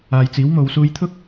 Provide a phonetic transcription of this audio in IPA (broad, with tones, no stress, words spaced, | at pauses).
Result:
aː˨jt͡siː˨˥w mo˨˧wsuː˧jt̪ʰʊ˥k̚